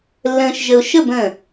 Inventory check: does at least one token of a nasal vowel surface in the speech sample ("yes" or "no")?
yes